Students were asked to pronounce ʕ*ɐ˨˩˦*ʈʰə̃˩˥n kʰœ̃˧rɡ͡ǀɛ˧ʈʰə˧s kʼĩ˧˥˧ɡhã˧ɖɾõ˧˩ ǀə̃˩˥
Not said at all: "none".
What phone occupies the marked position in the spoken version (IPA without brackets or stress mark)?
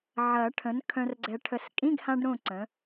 ɐ˨˩˦